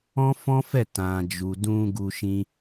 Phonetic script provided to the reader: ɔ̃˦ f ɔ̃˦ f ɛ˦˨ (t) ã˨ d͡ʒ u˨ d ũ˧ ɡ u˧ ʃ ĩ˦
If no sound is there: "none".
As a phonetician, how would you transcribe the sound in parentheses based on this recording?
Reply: t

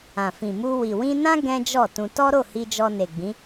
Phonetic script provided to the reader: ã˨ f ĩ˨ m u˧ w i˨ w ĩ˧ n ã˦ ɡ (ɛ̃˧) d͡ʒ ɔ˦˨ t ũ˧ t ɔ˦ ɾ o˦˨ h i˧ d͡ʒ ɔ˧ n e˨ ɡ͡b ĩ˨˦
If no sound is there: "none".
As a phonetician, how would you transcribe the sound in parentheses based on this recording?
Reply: ɛ̃˦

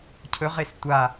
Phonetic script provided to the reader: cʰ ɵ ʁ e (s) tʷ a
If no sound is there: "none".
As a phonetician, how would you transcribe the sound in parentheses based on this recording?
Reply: s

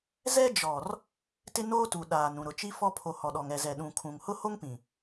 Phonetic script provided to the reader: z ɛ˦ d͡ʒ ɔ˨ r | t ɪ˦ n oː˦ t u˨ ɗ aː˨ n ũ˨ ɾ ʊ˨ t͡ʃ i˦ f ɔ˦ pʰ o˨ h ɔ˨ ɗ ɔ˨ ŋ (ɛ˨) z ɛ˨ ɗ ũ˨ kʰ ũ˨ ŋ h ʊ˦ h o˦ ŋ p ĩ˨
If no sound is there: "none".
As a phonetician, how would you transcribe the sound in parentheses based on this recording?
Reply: ɛ˨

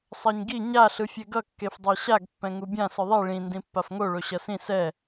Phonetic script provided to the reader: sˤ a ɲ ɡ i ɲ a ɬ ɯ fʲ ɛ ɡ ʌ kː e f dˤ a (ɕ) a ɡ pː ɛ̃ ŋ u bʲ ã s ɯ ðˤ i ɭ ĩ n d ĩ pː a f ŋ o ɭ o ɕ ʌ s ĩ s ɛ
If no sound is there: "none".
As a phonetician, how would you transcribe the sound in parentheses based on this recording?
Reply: ɕ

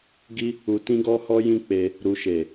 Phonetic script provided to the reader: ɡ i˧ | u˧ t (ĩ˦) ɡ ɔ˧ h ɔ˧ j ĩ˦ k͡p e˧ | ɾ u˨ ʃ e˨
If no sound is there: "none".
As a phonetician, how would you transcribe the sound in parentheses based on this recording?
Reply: ĩ˧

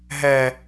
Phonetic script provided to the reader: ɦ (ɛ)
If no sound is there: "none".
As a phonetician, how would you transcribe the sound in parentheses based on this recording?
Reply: ɛ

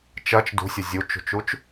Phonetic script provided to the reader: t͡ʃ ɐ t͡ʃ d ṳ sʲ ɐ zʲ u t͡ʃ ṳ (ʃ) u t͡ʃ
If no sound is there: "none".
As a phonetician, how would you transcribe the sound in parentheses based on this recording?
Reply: t͡ʃ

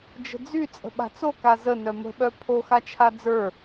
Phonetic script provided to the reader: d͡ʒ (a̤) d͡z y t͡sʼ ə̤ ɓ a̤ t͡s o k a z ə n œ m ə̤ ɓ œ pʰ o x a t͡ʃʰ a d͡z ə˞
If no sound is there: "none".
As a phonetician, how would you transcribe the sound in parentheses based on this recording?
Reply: ə̤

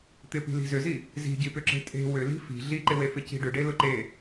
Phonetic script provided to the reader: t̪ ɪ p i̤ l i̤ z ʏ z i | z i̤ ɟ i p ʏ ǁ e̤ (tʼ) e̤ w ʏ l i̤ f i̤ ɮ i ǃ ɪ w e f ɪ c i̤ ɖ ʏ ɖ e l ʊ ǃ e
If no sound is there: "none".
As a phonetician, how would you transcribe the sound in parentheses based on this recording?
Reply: tʼ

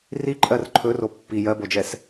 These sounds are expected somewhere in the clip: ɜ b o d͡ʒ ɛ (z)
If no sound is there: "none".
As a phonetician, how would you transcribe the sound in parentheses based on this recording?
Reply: s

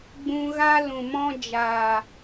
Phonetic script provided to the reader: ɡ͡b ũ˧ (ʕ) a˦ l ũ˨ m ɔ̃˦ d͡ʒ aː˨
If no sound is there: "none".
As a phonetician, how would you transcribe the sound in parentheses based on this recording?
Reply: ɣ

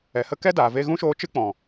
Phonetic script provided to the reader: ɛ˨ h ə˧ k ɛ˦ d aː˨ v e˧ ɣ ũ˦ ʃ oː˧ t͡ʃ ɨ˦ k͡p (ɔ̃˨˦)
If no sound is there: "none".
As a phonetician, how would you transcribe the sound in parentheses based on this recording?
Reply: ɔ̃˨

